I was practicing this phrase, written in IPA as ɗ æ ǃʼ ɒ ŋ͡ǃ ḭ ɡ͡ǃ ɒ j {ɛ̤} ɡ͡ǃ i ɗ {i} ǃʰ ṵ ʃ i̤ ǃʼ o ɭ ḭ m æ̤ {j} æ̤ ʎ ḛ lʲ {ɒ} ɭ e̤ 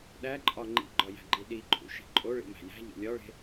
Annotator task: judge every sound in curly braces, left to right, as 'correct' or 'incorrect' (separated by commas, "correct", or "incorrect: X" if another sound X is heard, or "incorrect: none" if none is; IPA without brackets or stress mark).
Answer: incorrect: æ̤, correct, correct, correct